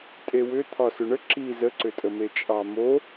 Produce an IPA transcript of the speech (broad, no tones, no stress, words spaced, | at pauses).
tʼewʏ t̪ʰɒsʏɳə ǁi zəǀʏtʼəme t͡ʃʼɑmo